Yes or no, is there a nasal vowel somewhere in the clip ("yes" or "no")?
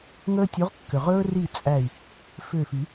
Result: no